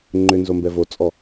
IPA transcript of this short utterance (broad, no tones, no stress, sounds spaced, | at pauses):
ŋ͡ǃ ʏ n z o m b ɛ v o t͡sʼ ɔ